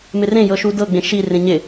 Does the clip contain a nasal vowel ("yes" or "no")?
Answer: yes